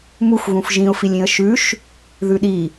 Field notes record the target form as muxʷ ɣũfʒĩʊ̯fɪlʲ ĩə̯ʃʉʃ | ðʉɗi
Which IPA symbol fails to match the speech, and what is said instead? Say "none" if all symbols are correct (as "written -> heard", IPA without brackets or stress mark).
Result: ɪ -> i